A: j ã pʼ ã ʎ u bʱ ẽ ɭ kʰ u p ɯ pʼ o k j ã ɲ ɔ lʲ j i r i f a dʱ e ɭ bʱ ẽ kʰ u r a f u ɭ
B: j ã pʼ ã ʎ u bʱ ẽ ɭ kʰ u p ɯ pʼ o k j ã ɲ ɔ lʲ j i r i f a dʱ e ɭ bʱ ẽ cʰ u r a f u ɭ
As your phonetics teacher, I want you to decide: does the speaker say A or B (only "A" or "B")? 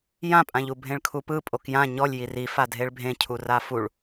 B